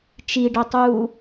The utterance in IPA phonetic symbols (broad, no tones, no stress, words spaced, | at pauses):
t͡ʃiɖəːtˤuː